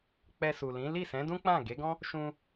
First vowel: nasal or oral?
oral